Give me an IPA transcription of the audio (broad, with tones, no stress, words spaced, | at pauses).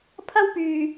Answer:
pʰɐ˥wpyː˧